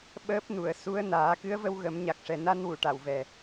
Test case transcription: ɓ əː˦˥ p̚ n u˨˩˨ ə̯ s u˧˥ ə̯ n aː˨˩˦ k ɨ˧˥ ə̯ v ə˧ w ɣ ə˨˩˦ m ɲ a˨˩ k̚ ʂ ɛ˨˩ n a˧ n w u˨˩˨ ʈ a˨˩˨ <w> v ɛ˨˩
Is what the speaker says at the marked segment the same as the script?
yes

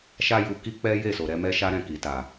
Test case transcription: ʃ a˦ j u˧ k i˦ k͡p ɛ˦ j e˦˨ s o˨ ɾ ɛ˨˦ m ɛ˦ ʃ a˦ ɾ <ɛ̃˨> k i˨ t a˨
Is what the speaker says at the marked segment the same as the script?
no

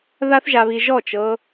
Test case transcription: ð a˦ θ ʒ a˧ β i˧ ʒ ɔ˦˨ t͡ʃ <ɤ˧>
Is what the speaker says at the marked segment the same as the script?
yes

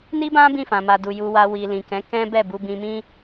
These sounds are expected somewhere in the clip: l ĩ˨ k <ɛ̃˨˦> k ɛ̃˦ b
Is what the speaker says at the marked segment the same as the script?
yes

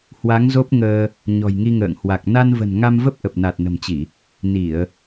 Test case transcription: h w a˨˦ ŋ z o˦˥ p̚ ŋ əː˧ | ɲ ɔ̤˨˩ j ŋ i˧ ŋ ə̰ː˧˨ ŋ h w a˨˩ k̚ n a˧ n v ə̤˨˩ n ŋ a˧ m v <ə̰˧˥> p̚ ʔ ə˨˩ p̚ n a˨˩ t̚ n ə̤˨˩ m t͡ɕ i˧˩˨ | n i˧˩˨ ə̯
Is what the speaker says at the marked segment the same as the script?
no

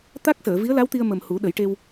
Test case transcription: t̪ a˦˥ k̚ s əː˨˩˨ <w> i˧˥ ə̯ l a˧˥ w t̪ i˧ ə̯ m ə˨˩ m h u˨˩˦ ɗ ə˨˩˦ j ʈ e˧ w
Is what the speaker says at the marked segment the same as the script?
no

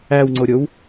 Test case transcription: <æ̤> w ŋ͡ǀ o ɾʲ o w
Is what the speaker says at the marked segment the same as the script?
no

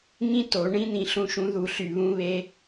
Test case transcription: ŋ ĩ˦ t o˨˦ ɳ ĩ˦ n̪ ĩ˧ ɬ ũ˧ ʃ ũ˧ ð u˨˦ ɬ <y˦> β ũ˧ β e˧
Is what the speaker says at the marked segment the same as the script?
no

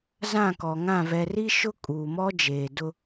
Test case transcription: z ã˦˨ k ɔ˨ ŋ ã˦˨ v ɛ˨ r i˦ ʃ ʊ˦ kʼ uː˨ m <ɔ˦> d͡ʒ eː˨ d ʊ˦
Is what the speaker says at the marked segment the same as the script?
yes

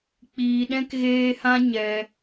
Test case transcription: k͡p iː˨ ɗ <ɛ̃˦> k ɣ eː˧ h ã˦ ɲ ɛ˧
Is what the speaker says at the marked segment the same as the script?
yes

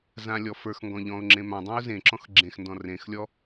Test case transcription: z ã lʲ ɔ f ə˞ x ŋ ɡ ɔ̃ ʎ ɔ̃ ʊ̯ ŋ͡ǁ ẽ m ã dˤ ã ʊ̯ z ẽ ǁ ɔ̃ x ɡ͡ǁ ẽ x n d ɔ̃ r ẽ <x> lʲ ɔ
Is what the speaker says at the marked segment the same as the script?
yes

